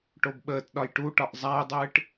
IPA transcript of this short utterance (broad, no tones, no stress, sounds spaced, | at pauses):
ʈ o b ɓ əː t ɗ ɒ j ʈ u ʈ ɒ ʔ zˤ a j dˤ ɨː ʈ